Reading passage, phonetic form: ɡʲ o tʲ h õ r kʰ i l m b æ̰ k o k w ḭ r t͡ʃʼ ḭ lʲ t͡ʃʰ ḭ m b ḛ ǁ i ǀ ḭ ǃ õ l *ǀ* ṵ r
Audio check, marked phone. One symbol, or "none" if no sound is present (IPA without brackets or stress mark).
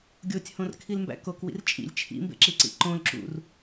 ǁ